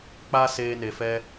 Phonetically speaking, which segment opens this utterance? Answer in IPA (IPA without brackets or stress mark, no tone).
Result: k͡p